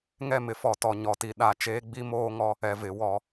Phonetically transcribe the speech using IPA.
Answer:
ŋ ɛ˦˨ m ɪ˨ f ɔ˨ t ɔ˨ ɲ ɔ˨ t i˨ ɗ a˨ t͡ʃ eː˦ ɡ͡b i˦ m oː˦ ŋ ɔ˦ | ɛ˨ v ɪ˨˦ w ɔ˨˦

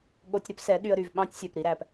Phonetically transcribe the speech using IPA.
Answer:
ɠ o˧ tʲ ɾ ɵ˦ p s ɛ˨˦ ɗ y˧ ə̯ ɾ y˨ v ɓ ɑ̃˦ tʲ sʲ œ˨ p ɾ i˦ ɾ æ˧ p

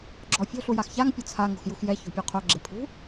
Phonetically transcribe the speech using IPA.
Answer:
ɡ͡ǁ ɔ fʲ o̤ ɬ u j a x ç a ŋ pʲ ʊ t͡sʰ a ŋ o̤ x j u x j ɛ ç o̤ pʲ o qʰ o ɡ͡ǁ e pʰ ṳ

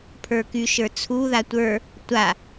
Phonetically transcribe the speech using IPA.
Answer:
pʰ ə˞ k y ʃ ə˞ t͡sʰ u ð a tʷ ə˞ | tʷ a

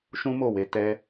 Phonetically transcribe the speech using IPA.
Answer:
ʃ ũ˦ m o˦˨ w e˨˦ t ɛ˦

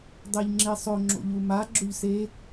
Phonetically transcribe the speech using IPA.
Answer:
dˤ ɛ ʎ ŋ͡ǁ e sˤ ɵ ŋ͡ǁ o̰ ʎ u m a ɡ͡ǁ ɵ ʎ s e

